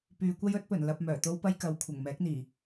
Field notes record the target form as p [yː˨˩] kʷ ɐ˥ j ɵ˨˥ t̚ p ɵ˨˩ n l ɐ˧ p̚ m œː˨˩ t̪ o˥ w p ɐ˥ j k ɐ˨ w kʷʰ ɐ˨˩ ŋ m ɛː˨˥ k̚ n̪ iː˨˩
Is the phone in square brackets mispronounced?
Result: yes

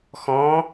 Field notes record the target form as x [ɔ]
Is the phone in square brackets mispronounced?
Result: yes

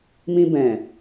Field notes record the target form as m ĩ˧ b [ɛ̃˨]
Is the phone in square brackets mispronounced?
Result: no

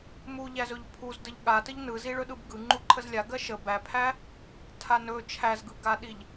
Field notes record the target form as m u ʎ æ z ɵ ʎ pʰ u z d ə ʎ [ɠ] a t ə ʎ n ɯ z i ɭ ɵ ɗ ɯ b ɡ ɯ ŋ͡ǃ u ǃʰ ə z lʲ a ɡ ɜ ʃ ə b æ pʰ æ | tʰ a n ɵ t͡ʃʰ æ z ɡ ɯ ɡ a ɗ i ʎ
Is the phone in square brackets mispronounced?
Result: no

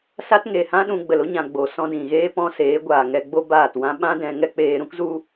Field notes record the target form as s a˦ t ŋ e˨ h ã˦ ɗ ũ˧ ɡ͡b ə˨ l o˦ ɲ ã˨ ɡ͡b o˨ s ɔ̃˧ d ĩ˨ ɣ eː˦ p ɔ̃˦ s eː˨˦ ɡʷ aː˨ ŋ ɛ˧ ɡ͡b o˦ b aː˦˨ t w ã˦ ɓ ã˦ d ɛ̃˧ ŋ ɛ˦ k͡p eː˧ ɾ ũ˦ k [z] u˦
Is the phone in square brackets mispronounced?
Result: no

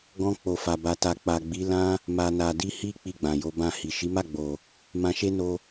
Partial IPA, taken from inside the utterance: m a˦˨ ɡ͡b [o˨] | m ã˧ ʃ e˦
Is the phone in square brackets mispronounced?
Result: no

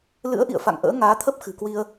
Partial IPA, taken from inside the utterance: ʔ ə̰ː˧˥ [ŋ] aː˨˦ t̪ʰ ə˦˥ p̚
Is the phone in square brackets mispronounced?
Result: no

